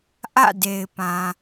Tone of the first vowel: falling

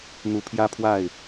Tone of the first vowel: rising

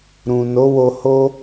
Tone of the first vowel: low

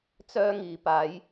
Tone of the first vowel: high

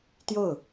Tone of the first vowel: falling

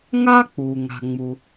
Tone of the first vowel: high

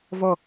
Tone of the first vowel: falling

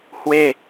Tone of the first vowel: falling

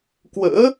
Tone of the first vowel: rising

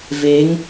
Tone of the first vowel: rising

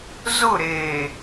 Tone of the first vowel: falling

